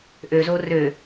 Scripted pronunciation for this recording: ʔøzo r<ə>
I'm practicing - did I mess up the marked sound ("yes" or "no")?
yes